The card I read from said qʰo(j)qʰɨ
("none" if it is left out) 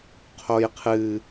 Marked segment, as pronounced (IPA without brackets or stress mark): j